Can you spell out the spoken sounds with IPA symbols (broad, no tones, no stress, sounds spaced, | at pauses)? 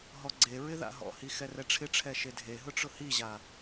ɦ ɔ ɡ͡ǀ e ɹ ɪ ð a̰ ɦ ɔ̰ h i x ɛ r ɛ ʈ͡ʂʰ ɪ ʈ͡ʂʰ ɛ ʃ e dʱ e ɦ ʊ ʈ͡ʂ ʊ h i ʑ a